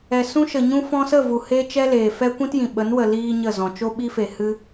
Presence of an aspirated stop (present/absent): absent